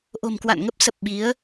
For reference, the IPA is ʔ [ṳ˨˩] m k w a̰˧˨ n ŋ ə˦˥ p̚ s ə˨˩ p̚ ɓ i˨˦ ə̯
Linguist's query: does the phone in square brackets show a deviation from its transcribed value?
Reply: yes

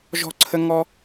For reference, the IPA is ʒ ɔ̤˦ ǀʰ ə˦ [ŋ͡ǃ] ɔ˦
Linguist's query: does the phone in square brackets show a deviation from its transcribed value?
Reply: yes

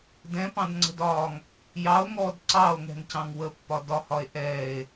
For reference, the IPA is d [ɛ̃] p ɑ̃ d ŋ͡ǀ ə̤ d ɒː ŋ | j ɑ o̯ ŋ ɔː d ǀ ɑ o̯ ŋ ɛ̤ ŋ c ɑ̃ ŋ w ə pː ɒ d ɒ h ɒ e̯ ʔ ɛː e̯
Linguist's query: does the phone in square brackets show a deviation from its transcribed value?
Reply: no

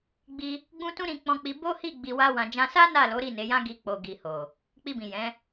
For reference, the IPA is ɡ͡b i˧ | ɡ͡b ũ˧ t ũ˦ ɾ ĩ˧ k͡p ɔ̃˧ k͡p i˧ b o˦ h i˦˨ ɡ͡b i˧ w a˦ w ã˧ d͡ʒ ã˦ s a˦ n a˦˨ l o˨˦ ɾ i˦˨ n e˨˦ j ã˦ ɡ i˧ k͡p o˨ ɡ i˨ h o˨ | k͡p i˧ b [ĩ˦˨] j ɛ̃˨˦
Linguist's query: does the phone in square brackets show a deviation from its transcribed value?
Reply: yes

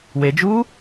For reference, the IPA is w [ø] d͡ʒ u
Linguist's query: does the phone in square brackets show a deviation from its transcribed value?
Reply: yes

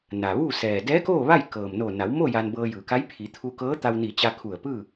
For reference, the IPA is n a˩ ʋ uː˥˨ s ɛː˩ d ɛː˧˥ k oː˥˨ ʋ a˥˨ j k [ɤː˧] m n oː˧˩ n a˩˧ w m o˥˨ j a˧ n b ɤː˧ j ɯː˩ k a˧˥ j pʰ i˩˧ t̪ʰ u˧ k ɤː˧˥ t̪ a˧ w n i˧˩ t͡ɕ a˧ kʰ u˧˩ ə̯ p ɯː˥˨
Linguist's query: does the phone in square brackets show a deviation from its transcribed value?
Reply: yes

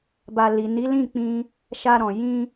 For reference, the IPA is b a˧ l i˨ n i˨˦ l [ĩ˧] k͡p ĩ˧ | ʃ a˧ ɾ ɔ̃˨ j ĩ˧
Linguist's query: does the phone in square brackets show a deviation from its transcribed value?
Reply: yes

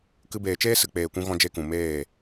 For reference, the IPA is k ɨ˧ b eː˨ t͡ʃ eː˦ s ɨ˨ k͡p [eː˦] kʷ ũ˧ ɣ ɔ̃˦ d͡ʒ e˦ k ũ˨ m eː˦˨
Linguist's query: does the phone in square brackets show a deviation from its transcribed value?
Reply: yes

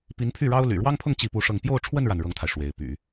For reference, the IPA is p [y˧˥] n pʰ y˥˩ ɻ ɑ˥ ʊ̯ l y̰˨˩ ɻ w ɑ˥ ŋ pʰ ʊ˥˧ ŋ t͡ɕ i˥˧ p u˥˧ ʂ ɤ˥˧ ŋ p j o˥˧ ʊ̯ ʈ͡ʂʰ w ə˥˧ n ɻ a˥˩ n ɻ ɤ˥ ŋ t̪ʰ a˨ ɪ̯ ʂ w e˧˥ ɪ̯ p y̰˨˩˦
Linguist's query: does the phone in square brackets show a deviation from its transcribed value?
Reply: yes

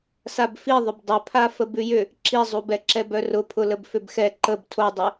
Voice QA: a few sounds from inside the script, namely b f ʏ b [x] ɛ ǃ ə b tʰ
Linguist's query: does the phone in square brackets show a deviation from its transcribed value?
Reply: no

